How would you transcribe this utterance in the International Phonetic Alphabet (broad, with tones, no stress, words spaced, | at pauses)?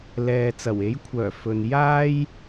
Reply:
lɛː˨t͡sɐ˨˩we˨˥jkʷʰœː˨˩ fɵ˨njaː˥j